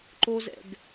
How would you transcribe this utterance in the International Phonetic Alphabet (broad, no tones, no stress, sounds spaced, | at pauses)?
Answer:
ǃ o z ɛ̰ ɡ